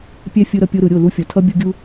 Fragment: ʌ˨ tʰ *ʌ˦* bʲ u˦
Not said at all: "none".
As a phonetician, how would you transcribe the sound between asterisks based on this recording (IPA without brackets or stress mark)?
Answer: ʌ˦